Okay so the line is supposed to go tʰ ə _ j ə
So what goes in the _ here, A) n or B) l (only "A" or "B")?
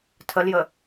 B